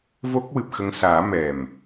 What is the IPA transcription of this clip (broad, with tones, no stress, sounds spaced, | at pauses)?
v o˦˥ k̚ w ɨ˨˩ p̚ x ə˧ ŋ s aː˨˩˦ m ɛ˨˩ m